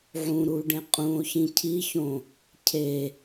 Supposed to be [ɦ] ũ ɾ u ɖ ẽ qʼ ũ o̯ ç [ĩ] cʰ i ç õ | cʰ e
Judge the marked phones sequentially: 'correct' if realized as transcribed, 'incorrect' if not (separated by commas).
incorrect, correct